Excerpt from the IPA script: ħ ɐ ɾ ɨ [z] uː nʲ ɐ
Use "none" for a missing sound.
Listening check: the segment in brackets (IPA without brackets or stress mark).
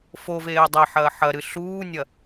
ɬ